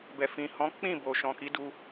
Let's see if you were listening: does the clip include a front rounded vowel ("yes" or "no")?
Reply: no